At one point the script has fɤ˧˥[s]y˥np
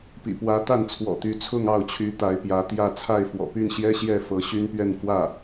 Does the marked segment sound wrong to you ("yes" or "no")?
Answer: yes